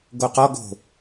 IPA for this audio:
ɡoqɔ ɡo̤

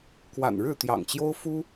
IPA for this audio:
kwa̰˨˩nɻɻ̩˥˨ t̪jɑ̰˨˩ŋt͡ɕjo˦ʊ̯fu˦

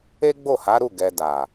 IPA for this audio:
e˦ɡ͡bo˦˨ha˨˦ɾu˦˨ ɡɛ˧da˨

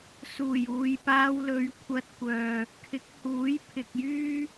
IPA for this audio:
suː˨˩juː˨jpaː˧wlɵ˨˧ɥ kʷʰɐ˧t̚kʷœː˨ | kʰɪ˨˥k̚huː˨˥j pʰɪ˨k̚jyː˥

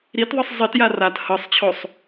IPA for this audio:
ɾitðˤɯsˤ zˤitja rat hɤsˤt͡ɕʰosˤ

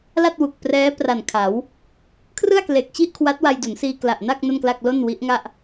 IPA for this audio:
la˥˩t̚wu˨˩k̚prɛː˦˥ pra˨˩nkʰa˩˦w | kʰrɯ˥˩a̯kle˨˩k̚t͡ɕi˥˩ʔkʰwa˦˥t̚ wa˧jdu˩˦nsiː˧ kla˨˩ʔna˥˩k̚ no˥˩nkla˥˩k̚ lo˥˩nwi˦˥ʔŋa˥˩ʔ

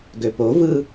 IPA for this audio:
ɡøpovɯ

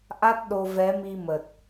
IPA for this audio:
ʔa˦˥t̚ ɗo˧ vɛ˨˦mi˧ mə˨˩t̚

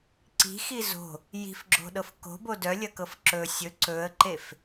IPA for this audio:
ǀi̤xi zo̤ | ji̤fɡ͡ǁo̤ɗɤf ko̤bo dœlʲɐkɤf ǁɵ sʲɵ ǀɵə̯ǃef

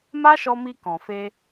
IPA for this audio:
ma˦ʃɔ˧mi˧ kɔ̃˨fe˧

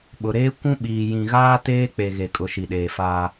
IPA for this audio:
ɓʊ˨ɾeː˦ kʷũ˦ɓiː˨ jĩ˨ɣaː˦ teː˦ k͡pe˨ ɣe˨kʼʊ˨ ʃi˨ɗeː˨faː˦

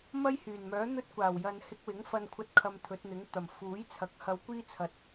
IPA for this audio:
mɐ˥jhyː˨˩nmœː˨˥ n̪ɵ˥t̚kʷaː˨˩w jɐ˨n hɪ˧k̚wɪ˨˥ŋfɐ˧nkʷʰɐ˧t̚ kʰɐ˧mt̪ʰɵ˨˥t̚n̪ɪ˨˥ŋt̪ɐ˨˩m fuː˨˥j t͡sʰɐ˨˥k̚hɐ˧wkʷiː˥ t͡sʰɐ˨t̚

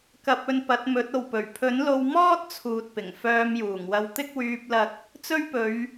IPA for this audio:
kɐ˧p̚ɵ˧n pɐ˨˥t̚mɵ˨˥t̚o˨wpɵ˨˩ɥ pʰɵ˨˥nlo˧wmɔː˥t̚ t͡sʰuː˧t̚pɪ˨˩ŋ fœː˧mjuː˨˩ŋwɐ˧wt̪ɪ˥k̚ wyː˧p̚lɐ˧k̚ | t͡sɵ˥ɥpɵ˨˧ɥ

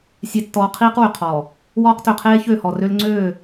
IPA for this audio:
sʲe˨tːɔː˨ qʰiː˦qwy˨ qʰɔː˨ | wɔː˦qtø˨qʰeː˦ çø˦˨hɔ˨rø˦l ŋ͡ǀøː˦˨

